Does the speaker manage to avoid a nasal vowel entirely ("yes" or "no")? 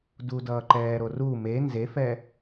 yes